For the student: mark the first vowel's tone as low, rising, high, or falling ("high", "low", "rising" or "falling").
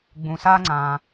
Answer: low